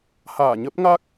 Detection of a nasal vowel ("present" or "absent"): absent